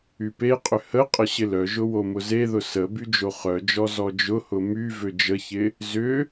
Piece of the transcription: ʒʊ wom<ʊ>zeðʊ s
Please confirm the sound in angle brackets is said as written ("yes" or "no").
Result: yes